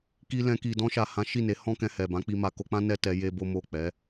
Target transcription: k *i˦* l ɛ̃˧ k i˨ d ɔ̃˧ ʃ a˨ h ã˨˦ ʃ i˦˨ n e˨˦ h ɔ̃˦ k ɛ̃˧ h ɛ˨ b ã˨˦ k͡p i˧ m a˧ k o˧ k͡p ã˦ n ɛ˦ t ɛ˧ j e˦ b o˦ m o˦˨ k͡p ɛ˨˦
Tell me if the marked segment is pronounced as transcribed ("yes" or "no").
no